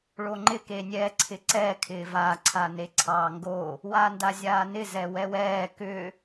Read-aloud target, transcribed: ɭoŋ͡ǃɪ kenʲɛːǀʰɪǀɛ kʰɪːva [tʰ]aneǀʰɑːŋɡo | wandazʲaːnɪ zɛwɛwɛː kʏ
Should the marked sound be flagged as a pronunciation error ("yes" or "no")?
yes